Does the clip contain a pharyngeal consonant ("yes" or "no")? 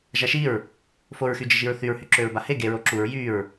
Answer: no